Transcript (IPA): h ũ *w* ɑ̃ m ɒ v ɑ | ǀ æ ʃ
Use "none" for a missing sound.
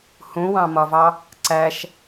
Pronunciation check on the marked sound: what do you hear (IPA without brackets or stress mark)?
w